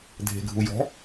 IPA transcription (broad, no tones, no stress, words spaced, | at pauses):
dʱe̤ɡʱujɔ̤